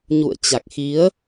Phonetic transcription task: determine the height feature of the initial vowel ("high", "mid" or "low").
high